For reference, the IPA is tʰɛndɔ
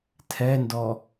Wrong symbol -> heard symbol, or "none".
none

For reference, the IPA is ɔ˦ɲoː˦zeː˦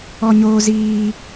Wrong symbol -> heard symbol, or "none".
eː˦ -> iː˦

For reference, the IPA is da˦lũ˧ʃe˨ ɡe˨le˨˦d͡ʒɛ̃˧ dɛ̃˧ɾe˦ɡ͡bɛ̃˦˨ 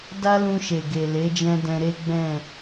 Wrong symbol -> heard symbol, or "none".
none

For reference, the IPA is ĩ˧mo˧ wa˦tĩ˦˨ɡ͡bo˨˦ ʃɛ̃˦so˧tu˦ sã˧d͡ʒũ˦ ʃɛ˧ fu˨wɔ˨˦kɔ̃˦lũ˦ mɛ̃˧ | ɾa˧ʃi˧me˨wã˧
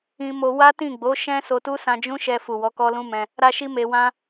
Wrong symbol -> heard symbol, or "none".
ɔ̃˦ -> ɔ˦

